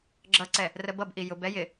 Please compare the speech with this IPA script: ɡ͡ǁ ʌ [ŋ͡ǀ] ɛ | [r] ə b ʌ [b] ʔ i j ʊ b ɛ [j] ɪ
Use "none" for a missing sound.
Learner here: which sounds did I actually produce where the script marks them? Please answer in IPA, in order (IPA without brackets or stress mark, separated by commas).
ǀ, r, b, j